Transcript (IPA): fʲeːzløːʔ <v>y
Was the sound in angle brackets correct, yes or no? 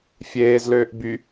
no